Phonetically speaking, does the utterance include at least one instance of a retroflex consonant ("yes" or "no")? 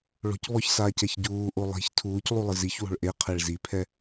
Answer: yes